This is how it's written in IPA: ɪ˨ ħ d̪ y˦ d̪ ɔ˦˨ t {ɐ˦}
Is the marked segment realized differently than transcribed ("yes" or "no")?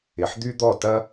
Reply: no